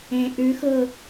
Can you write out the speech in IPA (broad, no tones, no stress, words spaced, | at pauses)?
ẽ ʔʉ xɤ